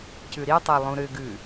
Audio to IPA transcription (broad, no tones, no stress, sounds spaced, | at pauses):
c ʉ ɾ i tˤ ɛ lˠ ũ ɾ ʏ ɡ ʉ